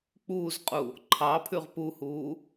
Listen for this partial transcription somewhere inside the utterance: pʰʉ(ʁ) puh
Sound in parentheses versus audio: correct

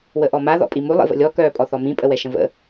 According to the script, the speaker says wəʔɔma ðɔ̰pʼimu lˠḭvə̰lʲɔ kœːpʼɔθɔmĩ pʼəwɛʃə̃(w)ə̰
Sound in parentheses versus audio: incorrect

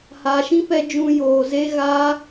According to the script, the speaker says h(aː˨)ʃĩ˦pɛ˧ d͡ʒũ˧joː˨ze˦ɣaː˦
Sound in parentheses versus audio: correct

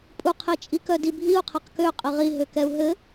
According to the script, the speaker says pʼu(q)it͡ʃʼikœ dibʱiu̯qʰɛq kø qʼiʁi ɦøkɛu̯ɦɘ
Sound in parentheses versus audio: incorrect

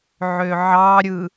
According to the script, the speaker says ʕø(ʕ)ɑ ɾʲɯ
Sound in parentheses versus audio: correct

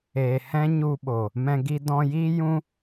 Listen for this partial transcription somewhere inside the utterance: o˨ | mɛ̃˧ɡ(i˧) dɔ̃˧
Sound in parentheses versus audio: correct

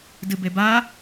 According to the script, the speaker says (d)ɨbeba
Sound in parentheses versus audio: correct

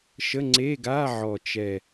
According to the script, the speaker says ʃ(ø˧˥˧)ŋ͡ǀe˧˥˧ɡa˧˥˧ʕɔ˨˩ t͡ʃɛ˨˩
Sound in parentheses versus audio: incorrect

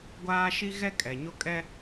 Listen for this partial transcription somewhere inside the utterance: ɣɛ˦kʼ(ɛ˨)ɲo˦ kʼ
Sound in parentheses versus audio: correct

